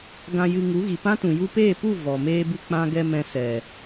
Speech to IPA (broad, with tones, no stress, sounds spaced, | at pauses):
ɡ ã˧ j ɨ˧ ŋ u˨˦ ɣ i˨ p ã˦ t ũ˨ j u˧ p eː˦˨ p u˦˨ v ɔ˨ m eː˦ b ɨ˦ k͡p ã˧ ɡ ɛ˧ m ɛ̃˧ s ɛ˨